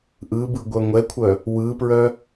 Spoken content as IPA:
ʔ ɯ b ɯ ɡʷ œ ŋʷ ɛ kʷʰ œ | w ɯ p ɹ œ

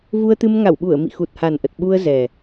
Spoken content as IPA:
v u˧ ə̯ t̪ ɨ˧ m ŋ a˧˩ w ɓ u˧˩ ə̯ m ḭ˧˨ x u˨˩ t̚ h a˨˩ n ʔ ə˨˩ t̚ ɓ u˧ ə̯ z ɛ˨˩

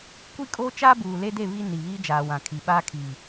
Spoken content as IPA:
kʷ i˦ kʼ oː˦ t͡ʃ aː˦ b uː˨ l e˦ d e˦˨ β i˦ n i˨ β iː˦ d͡ʒ aː˨ w ã˨ kʰ i˨ ɓ aː˦ kʰ i˨

